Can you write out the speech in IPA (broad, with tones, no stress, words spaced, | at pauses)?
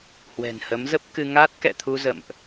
hwɛ̤˨˩nhə˨˦mzə˦˥p̚kɨ˧ ŋa˦˥t̚kɛ̰˧˨t̪ʰu˧zə̰˧˨mʔ